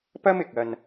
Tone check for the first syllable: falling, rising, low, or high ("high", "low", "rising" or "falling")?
high